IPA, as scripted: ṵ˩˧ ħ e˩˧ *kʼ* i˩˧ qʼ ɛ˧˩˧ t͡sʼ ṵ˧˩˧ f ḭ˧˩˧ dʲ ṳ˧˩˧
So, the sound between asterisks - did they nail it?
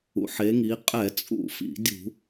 no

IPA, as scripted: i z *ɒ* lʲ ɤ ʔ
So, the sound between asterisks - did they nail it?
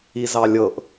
no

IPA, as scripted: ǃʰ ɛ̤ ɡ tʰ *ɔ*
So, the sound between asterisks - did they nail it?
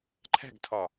yes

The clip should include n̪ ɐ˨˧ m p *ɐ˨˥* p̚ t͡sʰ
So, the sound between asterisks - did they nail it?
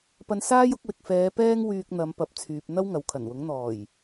yes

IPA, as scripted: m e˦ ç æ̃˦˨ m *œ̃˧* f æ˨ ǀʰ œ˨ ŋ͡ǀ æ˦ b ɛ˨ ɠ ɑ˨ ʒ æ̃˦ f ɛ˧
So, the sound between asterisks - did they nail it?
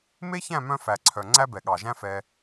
yes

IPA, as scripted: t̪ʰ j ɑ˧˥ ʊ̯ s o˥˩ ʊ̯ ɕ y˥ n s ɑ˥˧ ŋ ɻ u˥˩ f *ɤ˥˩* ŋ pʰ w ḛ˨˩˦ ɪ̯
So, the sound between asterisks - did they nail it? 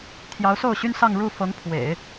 no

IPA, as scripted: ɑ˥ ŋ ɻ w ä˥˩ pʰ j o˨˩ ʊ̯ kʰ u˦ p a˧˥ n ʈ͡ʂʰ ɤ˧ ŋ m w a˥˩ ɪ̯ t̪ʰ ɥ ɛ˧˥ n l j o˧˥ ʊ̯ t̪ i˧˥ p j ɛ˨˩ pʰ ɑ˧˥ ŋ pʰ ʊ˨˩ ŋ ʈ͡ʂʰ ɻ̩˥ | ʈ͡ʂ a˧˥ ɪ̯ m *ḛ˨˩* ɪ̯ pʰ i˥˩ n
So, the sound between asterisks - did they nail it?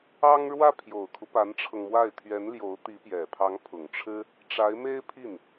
no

